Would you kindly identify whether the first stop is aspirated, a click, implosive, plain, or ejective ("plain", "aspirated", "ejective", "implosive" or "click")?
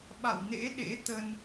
implosive